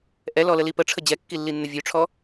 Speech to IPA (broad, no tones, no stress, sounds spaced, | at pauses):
ʔ ɛ l ɔ l ə l i p ə ʈ͡ʂʰ ə d͡ʑ ɛ kː i lː i nː ə vʲ ø ʈ͡ʂʰ ɔ